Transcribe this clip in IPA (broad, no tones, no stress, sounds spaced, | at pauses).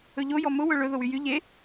ɵ ʎ o j ɔ m ʊ w ɵ ɭ ɵ ð ʊ w y j y ʎ e